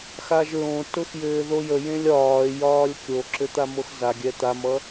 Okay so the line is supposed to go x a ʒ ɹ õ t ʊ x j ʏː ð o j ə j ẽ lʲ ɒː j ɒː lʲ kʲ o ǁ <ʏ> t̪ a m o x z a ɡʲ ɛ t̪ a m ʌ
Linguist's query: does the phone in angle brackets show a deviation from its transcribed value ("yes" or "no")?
no